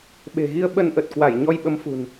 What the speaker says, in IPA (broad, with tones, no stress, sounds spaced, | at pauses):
ɓ e̤˨˩ ɣ i˧ ə̯ ɓ ə˧ n ʔ ə˨˩ t̚ k w a˧˩ j ɲ ɔ˧ j ɓ ə˨˦ m f ṳ˨˩ n